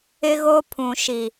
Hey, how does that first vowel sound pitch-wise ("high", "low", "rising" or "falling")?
high